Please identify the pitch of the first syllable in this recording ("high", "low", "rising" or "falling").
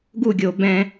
falling